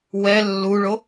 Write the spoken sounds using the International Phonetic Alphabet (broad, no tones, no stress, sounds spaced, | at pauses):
w ɛ lː u ɭ o